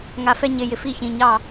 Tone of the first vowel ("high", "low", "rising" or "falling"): rising